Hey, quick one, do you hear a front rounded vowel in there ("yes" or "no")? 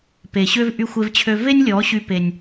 yes